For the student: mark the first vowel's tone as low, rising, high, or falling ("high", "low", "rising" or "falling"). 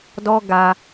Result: high